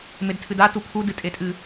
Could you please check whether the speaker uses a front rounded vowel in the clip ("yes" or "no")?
no